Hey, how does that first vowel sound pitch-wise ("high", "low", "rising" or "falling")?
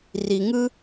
low